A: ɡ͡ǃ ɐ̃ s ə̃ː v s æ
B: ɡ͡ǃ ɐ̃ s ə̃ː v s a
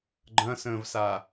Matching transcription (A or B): B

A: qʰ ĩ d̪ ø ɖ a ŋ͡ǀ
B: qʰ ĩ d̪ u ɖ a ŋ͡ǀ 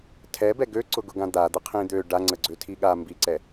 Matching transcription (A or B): A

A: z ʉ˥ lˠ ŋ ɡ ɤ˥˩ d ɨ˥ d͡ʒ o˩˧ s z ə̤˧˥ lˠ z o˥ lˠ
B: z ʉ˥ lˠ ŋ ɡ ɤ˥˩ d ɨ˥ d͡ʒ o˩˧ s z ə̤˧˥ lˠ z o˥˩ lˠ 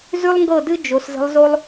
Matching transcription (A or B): A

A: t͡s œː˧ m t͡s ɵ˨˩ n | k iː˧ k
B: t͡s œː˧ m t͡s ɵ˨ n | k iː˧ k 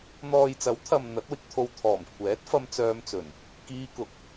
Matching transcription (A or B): A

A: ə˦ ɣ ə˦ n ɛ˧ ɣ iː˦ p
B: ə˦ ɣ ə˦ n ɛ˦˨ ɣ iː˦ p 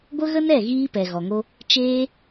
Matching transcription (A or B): B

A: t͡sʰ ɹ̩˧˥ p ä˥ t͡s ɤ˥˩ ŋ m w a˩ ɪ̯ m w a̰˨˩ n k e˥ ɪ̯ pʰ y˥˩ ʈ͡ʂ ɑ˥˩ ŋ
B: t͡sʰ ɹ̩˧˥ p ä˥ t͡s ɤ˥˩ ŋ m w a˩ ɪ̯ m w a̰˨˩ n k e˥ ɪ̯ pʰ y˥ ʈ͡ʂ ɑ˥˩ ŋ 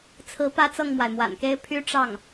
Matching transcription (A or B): B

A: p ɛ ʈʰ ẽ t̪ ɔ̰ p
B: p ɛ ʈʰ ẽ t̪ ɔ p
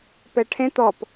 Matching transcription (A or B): B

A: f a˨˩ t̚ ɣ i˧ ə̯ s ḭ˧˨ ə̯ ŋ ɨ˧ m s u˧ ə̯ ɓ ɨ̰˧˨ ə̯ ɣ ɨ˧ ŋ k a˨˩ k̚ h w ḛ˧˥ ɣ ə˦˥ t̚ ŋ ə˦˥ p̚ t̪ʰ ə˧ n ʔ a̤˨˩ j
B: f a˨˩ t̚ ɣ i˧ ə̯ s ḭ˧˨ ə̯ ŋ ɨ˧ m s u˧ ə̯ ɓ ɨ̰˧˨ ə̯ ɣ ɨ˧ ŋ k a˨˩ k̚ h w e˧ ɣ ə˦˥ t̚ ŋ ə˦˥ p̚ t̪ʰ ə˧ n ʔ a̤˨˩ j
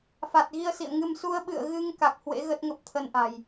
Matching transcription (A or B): A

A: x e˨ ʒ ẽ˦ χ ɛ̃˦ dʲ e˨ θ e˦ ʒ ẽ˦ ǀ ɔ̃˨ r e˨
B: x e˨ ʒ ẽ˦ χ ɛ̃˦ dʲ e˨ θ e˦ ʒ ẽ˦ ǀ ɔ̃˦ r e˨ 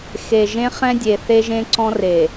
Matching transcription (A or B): B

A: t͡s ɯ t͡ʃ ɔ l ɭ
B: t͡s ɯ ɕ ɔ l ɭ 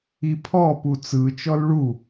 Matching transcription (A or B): A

